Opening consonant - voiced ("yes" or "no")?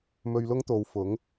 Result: yes